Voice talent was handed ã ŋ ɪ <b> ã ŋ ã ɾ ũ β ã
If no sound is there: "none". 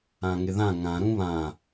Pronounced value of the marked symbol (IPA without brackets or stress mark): ð